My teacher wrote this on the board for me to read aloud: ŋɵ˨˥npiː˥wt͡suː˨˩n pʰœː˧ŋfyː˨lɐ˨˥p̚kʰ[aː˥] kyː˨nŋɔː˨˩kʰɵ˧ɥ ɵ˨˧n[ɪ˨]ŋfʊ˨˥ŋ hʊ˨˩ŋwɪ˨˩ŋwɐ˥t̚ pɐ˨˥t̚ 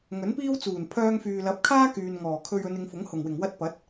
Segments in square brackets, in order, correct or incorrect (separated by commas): correct, incorrect